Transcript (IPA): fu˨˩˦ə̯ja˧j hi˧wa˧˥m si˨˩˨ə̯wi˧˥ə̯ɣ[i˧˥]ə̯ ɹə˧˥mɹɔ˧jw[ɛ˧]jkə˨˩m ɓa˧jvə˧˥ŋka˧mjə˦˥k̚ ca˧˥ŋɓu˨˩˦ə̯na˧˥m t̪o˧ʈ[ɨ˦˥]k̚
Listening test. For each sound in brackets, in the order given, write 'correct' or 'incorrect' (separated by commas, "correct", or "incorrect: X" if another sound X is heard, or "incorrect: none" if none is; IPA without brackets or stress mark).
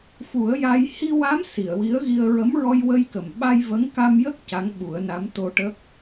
incorrect: i˧, incorrect: ə˧, incorrect: ə˦˥